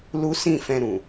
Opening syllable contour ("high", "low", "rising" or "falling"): high